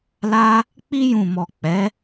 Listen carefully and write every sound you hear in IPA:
l a˦ | k͡p i˧ j ũ˨ m ɔ˨ k͡p ɛ˨˦

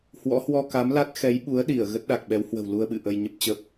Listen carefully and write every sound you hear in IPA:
h w ɔ̰˧˥ h w ɔ˧ k a˨˦ m l a˦˥ t̚ x ɛ˨˦ j ɓ u˨˦ ə̯ ɗ i˧˩ ə̯ ɣ ə˦˥ t̚ ɗ a˨˩ k̚ ɓ ɛ˨˦ w h w ə̤˨˩ w l u˧ ə̯ ɓ ɨ̰˧˨ ʔ ə˧ j ɲ ə˦˥ p̚ t͡ɕ ə˦˥ p̚

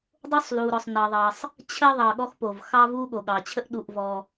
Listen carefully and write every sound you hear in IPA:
dˤ o˥ sˤ l u˨ ɾ ɔ˨ sˤ n ɑ˨ ðˤ ɑ˨ sˤ | t͡ɕʰ ə˥ ðˤ ɑ˨ ɠ ɔ˥ x p o˩ v x ɑ˥ v u˦ ɠ o˩ ɠ ɑ˩ t͡ɕʰ ə˥ ʔ ɗ u˨ ʔ v ɔ˨

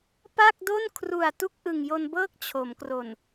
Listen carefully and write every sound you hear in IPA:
p a˥˩ k̚ d o˥˩ n kʰ r u˨˩ a̯ t u˥˩ k̚ ʔ ɯ˨˩ ŋ j o˧ n b ɤː˥˩ k̚ t͡ɕʰ o˩˦ m k r o˨˩ n

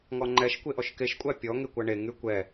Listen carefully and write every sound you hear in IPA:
ŋ ɔ ŋ͡ǃ ɛ ʃ kʷ e ʔ ɔ ʃ k e ʃ kʷʼ æ pʲ ɔ ŋ e kʷ a ɳ e ŋ y kʷ ɛ

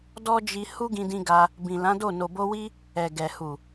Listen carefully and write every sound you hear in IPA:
d ɔ˦ d͡ʒ i˧ h u˦ ɡ ĩ˧ d ĩ˧ ɡ a˧ | b ĩ˨ l ã˨˦ d o˦˨ n o˨ b o˧ w i˦ | ɛ˨ ɡ ɛ˨ h u˨

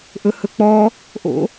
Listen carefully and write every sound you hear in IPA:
ʔ ɵ h ɵ k͡p ɔ | ʔ o̰

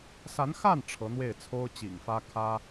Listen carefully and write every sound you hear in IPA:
s a˧˥ n x a˥˩ n ʈ͡ʂʰ ɤ˧˥ n̪ w e˥˩ ɪ̯ t͡sʰ o˥ ʊ̯ t͡ɕ ḭ˨˩ ŋ f ä˥ kʰ ä˥

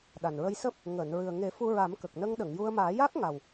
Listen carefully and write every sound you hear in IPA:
ɗ a˨˩ n ɹ ə˧ j s əː˦˥ p̚ | ŋ əː˨˩˨ n ɹ ɨ˨˩ ə̯ ŋ e˨˩˦ f u˧ ɹ a˨˩˦ m k ə˨˩ k̚ n ə˧ ŋ ɗ ə˨˩˨ ŋ j u˧ ə̯ m aː˨˩˦ j a˦˥ k̚ ŋ a˨˩ w

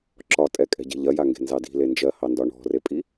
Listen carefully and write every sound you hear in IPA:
ǁ ɒ tʼ ɛ kʼ ɛ̤ ɟ ɛ̤ ʎ ɐ j a ŋ ɡ e̤ n z ɑ d i̤ l e n d͡ʒ ɜ h ɑ n d ɒ ɳ ɔ̤ r e pʼ i

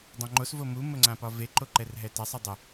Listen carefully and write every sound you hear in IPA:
dˤ õ ŋ͡ǃ o s v o m u m ə ŋ͡ǀ ã p ɒ v e ǃ o ǃ ɛ r ɦ ɛ t a sˤ ɪ dˤ ɪ

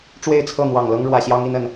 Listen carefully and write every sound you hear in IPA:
ʈ͡ʂ w e˥˨ ɪ̯ t͡sʰ ɤ˥˨ n̪ w ɑ˨˩ ŋ l ɤ˦ ŋ ɻ w ä˨˩ ɕ j ɑ˦ ŋ i˦ n ə˨˦ n

